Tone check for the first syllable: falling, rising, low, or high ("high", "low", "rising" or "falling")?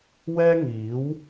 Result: high